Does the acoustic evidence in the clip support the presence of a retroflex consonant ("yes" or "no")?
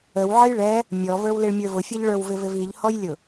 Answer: yes